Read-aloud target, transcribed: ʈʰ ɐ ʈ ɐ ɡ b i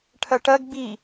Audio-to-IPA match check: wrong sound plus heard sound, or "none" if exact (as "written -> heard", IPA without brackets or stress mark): none